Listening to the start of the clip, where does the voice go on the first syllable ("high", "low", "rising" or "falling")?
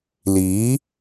rising